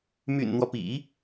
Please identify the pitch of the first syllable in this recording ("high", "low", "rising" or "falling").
low